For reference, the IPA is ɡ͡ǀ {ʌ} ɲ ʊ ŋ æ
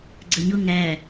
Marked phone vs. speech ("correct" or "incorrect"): incorrect